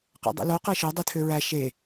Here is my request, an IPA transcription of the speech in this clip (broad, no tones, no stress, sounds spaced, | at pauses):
q æ̰ dˤ ḭ l o q æ ʃ ø dˤ i tʰ ø ɹ æ ʃ e